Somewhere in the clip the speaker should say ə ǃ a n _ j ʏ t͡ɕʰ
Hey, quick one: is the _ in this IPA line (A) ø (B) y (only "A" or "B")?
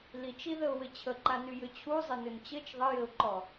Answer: B